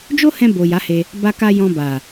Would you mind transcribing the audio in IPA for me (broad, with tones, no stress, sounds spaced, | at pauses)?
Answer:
d͡ʒ o˦ h ɛ̃˧ b o˨ j a˨˦ h e˧ | b a˧ k a˧ j ɔ̃˧ b a˨